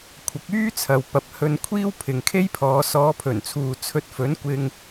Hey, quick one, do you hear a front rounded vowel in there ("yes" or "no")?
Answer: yes